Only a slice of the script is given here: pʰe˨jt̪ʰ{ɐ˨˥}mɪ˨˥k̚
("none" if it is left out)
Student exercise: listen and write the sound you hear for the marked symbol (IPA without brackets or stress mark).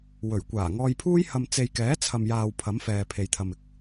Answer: ɐ˨